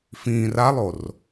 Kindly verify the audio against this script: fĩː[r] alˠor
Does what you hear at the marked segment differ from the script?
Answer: no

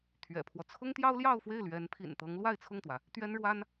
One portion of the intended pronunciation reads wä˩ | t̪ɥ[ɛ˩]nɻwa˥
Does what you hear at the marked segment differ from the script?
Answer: yes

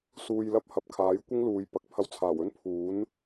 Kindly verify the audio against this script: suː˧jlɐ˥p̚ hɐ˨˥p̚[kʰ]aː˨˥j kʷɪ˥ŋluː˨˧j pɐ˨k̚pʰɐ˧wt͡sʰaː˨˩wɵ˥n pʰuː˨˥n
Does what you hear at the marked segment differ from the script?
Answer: no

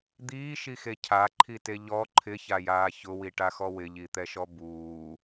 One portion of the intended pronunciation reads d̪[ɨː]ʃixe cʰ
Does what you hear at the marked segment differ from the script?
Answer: yes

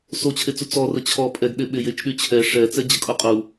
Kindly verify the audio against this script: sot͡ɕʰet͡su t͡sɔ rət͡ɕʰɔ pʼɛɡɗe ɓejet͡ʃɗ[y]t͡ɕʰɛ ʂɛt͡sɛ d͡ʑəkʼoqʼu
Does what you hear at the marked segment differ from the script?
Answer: no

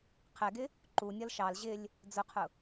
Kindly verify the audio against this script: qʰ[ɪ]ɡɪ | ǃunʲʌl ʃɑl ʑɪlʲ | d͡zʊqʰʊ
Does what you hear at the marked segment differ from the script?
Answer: yes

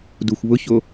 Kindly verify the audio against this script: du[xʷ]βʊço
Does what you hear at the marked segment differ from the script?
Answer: no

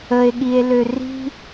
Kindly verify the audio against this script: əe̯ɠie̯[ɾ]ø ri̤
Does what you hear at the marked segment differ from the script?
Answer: yes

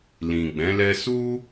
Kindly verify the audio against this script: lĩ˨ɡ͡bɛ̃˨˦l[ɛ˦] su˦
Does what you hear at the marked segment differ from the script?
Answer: no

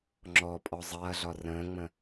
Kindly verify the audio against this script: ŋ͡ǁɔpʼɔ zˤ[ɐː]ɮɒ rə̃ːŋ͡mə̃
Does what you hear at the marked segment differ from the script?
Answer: no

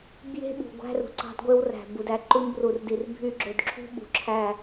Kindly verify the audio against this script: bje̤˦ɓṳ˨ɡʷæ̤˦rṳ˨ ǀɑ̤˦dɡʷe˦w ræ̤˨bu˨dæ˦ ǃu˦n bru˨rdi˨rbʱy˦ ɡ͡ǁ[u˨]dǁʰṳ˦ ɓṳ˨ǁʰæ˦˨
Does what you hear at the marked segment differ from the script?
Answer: yes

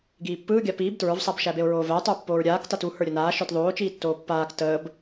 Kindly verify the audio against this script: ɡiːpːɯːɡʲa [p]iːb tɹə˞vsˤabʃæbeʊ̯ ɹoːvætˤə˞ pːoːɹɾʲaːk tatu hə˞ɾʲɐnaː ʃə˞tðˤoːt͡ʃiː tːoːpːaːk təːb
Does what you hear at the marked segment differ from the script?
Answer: no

